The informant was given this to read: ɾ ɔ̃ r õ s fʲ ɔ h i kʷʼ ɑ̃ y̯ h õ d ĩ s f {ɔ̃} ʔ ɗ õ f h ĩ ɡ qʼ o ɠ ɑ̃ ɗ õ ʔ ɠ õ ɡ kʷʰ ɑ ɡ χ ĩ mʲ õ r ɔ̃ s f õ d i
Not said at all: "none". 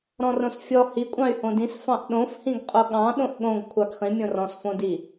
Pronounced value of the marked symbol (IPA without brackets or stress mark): ɑ̃